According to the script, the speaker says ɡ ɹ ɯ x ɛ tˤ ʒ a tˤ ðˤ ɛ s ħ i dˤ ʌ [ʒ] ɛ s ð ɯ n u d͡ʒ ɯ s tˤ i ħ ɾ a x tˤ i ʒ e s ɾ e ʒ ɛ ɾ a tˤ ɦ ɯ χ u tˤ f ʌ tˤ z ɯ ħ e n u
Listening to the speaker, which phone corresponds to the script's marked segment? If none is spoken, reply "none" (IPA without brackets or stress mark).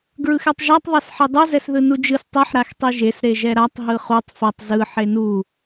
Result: z